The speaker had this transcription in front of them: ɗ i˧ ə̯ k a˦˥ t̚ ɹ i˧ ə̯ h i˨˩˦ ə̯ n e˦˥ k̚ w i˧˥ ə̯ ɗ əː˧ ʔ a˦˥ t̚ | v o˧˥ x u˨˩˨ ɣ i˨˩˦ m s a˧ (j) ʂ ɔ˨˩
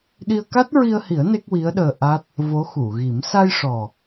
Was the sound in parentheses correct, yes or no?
yes